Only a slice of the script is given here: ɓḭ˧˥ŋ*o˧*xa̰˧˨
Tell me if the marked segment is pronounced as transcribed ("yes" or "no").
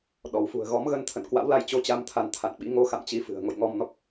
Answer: yes